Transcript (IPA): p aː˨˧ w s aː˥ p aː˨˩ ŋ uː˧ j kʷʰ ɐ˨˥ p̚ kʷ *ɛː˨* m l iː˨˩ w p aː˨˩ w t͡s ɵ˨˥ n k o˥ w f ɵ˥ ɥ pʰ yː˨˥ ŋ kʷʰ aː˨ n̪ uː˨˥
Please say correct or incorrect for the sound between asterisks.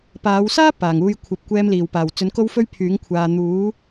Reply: incorrect